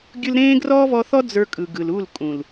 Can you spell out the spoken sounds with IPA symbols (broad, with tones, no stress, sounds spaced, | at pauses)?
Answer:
ɡʲ ɯ˧ l ɾ ẽː˦ ɡ r ɔː˦ v ɔ˧ θ ɔ˦ d͡z ə˞˧ kʼ ɯ˨ ɡ ɯ˨ l u˦˨ l kʼ ũ˨ l